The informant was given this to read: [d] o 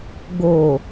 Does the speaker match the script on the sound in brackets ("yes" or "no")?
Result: no